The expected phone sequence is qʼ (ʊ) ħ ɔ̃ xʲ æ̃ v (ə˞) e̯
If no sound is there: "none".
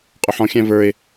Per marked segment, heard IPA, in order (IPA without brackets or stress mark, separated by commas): ʊ, ə˞